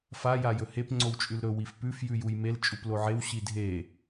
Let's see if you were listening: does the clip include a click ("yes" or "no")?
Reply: yes